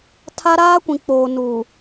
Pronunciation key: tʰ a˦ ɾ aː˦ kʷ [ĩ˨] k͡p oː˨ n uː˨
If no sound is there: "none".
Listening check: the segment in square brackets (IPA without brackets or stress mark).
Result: ĩ˨